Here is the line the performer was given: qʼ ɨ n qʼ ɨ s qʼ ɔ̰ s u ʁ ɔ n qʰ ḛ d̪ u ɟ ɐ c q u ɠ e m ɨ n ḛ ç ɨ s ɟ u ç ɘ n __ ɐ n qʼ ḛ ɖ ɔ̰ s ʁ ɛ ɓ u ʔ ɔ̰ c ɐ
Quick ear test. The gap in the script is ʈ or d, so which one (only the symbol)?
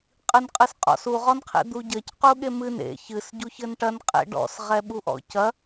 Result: ʈ